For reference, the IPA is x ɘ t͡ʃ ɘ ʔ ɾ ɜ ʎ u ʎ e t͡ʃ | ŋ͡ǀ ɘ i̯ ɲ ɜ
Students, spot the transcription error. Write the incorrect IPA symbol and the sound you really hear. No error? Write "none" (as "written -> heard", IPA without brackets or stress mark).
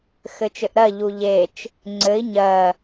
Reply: none